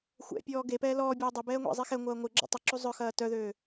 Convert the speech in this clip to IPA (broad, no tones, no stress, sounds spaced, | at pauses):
xʷ ɛ̰ pʲ ɔː ɡ e p ɛː l ɔː bʲ ɐː dˤ ʏ b ɛː ŋʷ ɛ̰ zˤ e x ɛ ŋʷ ɐː ŋʷ ɪ ɡ͡ǁ ɔ̰ tˤ ɐ ǁ u zˤ œ x ɐː t œ ð øː